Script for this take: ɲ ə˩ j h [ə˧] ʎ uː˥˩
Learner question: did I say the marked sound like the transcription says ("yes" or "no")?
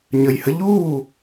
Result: yes